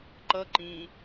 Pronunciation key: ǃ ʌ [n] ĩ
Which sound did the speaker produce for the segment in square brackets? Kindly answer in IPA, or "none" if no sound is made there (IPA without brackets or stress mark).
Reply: ǃ